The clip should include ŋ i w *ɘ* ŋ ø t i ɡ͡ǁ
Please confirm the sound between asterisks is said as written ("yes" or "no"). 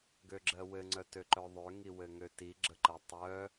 yes